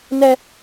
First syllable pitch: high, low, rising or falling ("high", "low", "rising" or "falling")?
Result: high